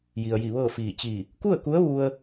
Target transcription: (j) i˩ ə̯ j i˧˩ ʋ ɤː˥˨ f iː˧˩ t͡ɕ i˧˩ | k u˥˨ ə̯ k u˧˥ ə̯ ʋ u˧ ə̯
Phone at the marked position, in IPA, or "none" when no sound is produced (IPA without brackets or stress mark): j